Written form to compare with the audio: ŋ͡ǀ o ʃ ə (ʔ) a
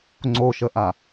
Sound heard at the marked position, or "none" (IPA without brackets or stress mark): ʔ